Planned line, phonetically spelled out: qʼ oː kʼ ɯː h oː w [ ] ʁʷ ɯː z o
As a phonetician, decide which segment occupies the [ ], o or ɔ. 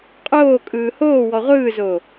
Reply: ɔ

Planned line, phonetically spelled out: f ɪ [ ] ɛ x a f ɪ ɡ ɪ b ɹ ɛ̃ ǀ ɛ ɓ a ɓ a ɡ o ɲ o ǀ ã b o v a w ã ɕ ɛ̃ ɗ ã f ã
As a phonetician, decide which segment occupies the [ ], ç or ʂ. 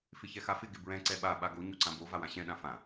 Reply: ç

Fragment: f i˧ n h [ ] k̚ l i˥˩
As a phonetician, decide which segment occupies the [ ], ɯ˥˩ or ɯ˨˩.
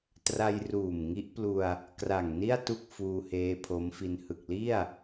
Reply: ɯ˨˩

